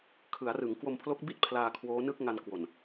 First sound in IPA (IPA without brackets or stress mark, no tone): kʰ